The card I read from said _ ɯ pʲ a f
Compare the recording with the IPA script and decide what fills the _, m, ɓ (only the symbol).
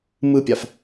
m